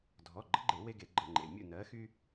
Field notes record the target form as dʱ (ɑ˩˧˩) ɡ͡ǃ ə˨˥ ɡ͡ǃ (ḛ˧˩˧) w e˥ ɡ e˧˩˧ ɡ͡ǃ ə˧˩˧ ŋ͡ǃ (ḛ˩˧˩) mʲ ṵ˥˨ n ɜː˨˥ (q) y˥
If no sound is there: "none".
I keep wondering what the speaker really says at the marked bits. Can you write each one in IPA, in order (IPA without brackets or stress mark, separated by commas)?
ɔ˩˧˩, e˧˩˧, ḛ˩˧˩, x